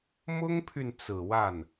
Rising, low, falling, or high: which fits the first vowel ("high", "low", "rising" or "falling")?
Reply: high